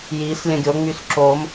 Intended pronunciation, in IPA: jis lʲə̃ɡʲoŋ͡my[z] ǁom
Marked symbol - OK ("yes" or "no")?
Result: no